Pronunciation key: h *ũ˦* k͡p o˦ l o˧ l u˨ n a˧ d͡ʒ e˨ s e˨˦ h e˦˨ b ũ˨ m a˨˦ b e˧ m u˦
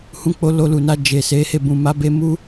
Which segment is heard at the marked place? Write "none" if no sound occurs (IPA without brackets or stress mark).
ũ˦